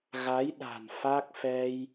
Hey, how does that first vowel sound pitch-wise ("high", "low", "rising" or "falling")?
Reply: rising